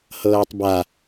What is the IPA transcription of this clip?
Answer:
hɤːtˤba

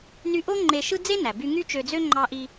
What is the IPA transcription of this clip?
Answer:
ny˧ʔo˥ ŋ͡ǃe˧ʃɯ˥ d͡ze˥næ˩by˧ ŋy˥t͡ʃø˧d͡zø˥ ŋ͡ǃɑ˧ʔi˧

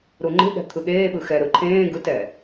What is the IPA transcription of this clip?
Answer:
ɾuŋ͡ǃe̤ɠɛ̤ t̪ʰɯɠeːɓɯ xɛɾɯ ǃʰẽː ɡɯtɛ

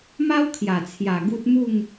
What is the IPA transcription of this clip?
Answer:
ma˦wkʰja˨˩t͡sʰja˨˩ ɡu˦t̚ mu˥˧ŋ

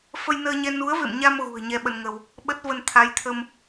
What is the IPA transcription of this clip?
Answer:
fə˧jnəː˧ɲɛ˧ nu˨˦ə̯vḛ˧˨mɲa˧m ɣṳ˨˩ə̯ɲɛ˧ ɓə˧nŋə˧w | ɓə˦˥t̚və˧n t̪ʰa˨˦jt̪ʰə˧m

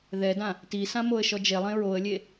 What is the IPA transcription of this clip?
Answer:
ðɛdã | tisã moə̯ʃɔd͡ʒelˠẽ ɹoə̯lʲe

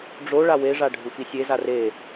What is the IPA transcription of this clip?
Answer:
ɖ͡ʐo ɭaweʐa ɖʱufisʲeza re

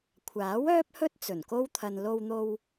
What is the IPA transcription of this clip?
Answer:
kʷʰaː˨˥wœː˥p̚hɵ˥t̚ t͡sɵ˨˩nko˥wt̪ʰɐ˧n lo˧wn̪o˧w

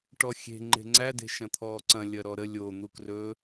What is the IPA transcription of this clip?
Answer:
ʈɔxʲe̤ ŋ͡ǃe̤ŋ͡ǀæ de̤ʃɐ̃t̪ʰɔːǀɐ̃ lʲɐɾɔɾə lʲo n̪ukrɵ

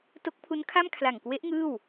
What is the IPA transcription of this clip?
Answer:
to˦˥k̚pʰu˦˥nkʰa˥˩m kʰla˨˩ŋkwe˦˥ʔ ŋɯː˥˩w

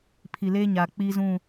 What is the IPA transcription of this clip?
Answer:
pʰi˨leː˦ɲaː˨ k͡piː˦zũ˦˨

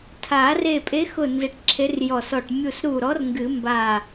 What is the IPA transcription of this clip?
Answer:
tʰa˨˩˦re˧˩ pʼe˨˥xʊ˧˩ nze˨˥ʈǁʰe˨˥rjɔ˧˩sɔ˧˩ʈ mʲu˧˩sɾu˧˩ɾɔ˨˥r ŋɡɨ˨˩˦mba˧˩

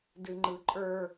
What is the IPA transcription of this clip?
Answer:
dɨŋ͡ǃɯǃʼə˞

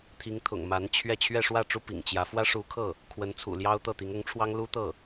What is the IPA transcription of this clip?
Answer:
t̪ʰi˧˥ŋt̪ʰʊ̰˨˩ŋ ma˧˥nt͡ɕʰɥɛ˥˧ t͡ɕʰɥɛ˥˧ʂwä˥˩ʈ͡ʂu˥ pḭ˨˩ŋt͡ɕjä˧˥ fwä˥ʂu˧˥kʰɤ˥˩ | kʰwə˧˥nt͡sʰṵ˨˩ljɑ˥ʊ̯ t̪ɤ˥˩t̪i˧˥ŋ ʊ˧˥ŋʈ͡ʂʰwɑ˥ŋ lu˥t̪ɤ˥˩

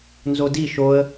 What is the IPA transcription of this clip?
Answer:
nzodi ʃoə̯

